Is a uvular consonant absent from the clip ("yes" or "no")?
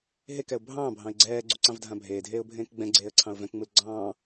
yes